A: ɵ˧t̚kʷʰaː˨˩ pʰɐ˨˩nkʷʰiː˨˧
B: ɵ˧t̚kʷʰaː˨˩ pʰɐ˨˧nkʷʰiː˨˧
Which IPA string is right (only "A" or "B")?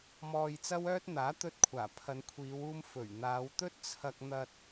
B